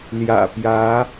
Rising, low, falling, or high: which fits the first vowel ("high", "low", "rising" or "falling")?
low